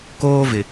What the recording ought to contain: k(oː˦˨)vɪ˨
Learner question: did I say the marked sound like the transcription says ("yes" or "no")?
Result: no